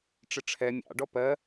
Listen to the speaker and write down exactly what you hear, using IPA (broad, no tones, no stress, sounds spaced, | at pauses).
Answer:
ʈ͡ʂ ɪ ʈ͡ʂʰ ɛ mʲ ɑ̰ ɖ ɔ p ɜ